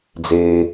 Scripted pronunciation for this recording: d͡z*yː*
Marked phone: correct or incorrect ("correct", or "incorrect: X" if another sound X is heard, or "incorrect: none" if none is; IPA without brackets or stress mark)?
incorrect: eː